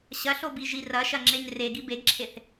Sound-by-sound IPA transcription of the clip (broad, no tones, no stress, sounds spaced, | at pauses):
ɕ ɐ ɬ o b i ʒ i r ɐ ʃ ɐ ŋ͡ǁ e ɲ r e ɡ i b e ɡ ǁʰ e θ